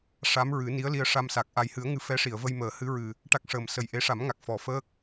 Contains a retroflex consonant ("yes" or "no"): yes